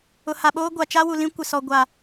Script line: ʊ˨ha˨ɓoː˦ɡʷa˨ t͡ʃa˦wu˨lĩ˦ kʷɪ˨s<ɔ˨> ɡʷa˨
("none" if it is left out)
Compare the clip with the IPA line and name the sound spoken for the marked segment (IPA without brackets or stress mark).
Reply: ɔ˨